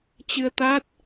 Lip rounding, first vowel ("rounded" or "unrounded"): unrounded